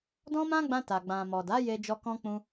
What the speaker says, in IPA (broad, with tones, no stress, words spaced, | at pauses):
dɔ̃˦mã˦ɡ͡bã˧ ta˨ɡ͡bã˨mɔ˨da˨˦ je˦d͡ʒɔ˦kɔ̃˦ k͡pũ˦